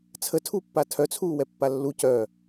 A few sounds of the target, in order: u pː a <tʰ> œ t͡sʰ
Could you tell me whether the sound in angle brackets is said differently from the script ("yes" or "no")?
no